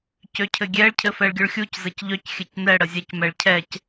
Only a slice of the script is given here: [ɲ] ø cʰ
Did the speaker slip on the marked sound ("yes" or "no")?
yes